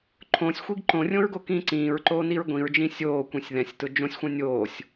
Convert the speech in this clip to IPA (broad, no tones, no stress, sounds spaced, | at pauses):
ǃʰ õ sʲ xʷ i ɡ ǃ õ rʲ õ ɹ ɡ o k ĩː ǀ ĩː ɹ ǃ oː n i ɹ ɡʷ ĩ ɹ d͡ʒ ĩ sʲ oː kʷ ĩ sʲ ð ɛ̃ sʲ t ʊ d͡ʒ õ sʲ xʷ ɛ̃ nʲ oː sʲ